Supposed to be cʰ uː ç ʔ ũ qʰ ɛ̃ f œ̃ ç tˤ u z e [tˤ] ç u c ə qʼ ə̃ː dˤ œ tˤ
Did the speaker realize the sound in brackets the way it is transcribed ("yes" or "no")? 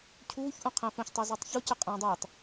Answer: yes